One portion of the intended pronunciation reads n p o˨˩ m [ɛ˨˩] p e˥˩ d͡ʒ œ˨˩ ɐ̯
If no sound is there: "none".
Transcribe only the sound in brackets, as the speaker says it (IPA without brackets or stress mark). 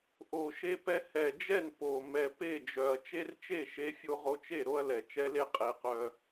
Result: ɛ˨˩